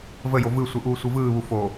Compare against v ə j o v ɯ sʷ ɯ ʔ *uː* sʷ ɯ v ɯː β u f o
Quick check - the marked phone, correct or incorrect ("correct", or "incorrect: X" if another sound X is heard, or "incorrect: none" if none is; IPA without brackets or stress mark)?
correct